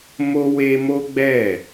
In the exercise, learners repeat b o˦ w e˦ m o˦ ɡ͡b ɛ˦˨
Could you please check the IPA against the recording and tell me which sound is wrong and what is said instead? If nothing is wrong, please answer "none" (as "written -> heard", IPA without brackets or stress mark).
b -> m